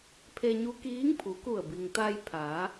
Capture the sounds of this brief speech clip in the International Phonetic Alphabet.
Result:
pʰe˧ɲu˧˥kiː˧˥ŋpʰu˩˧ ku˧˩ə̯bi˩ŋt̪a˧j pʰaː˩˧

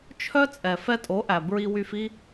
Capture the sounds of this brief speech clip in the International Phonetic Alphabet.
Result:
t͡ʃʰœ˦t͡sʼɛ˨ fɛ˧tʼo˨˦ʔæ˨ bɹi˧wy˧fi˦

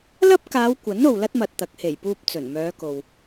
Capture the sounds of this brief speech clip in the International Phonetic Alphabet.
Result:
lɐ˥p̚kaː˨˧wkʷɐ˨˥n o˨wlɐ˥t̚mɐ˨t̚ t̪ɐ˨˥k̚he˨˩jpuː˧p̚ t͡sɵ˨˩nmœː˨˧ko˨w

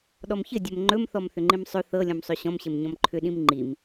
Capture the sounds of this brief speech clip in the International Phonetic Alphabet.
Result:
ɗɔmçɘ dʲɵmŋ͡ǃɵm θɔmθʏŋ͡ǃĩmsˤɵ θɤ lʲɔ̃msˤɵɕɔ̃m ɕɘmɲɔ̃mǃʰʏ ɗĩmŋ͡ǃim

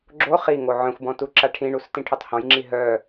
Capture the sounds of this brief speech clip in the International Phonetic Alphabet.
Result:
ɡ͡ǁo χiŋo ʕœ̃xʷbɔ̃ tuǁaʈʰĩɳus tĩʈʰotˤhɔ̃jŋ͡ǁi ɦœ

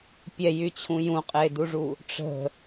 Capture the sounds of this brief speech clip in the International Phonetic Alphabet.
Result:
pʲɛjyt͡ɕʰũ jũqʼeduʐu | ʈ͡ʂə̤

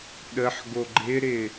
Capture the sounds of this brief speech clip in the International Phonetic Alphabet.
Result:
ɗəħ ɡoɡ͡ǃɪɾɪ

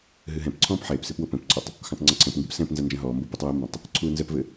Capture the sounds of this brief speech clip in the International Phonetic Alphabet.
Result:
ɦɨɦɛ̃pǀʰɔ̃ːp ħeːpsep wopɛ̃pǀʰɔtˤ | xɔ̃tˤŋ͡ǀɐǀʰɛ̃pŋɡɨp sɛ̃pnzɐ nd͡ʒɐ̃ɦɔːmbo putˤwɛmbɐ̃tˤ | ǀʰuːnzɛpvɘ

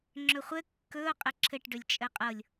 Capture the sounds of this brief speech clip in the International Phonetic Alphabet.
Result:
ŋ͡ǁɵχʷɘ kːɵʊ̯ qʼɘǁʰɘʈɖɵlʲ t͡ʃʼɘqʼɤlʲ

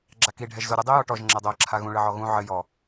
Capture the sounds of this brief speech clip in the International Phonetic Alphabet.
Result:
ɡ͡ǁaki ɖʱɛʒzoɾʲɘ dˤijɔʈɔʒ ŋ͡ǁɛdˤoə̯ǁʰaɣũ ɭɘʕɔɣũ ʕɘ jɔ

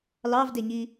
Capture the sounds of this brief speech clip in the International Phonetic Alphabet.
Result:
lɑvdeɲi

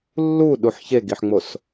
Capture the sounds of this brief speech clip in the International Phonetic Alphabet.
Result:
lːuɗuħ çeɡiħŋ͡mos

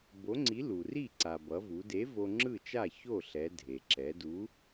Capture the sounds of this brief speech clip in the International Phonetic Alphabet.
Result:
bo˨˥ŋ͡ǀi˨˥lu˩ri˥˩ ǀa˩bʌ˩˧vu˩˧de˨˥ vo˧ŋ͡ǁɯ˥˩t͡ʃa˥˩ ço˥˩ɬɛ˩˧ dʱe˩ǁɛ˩˧du˨˥

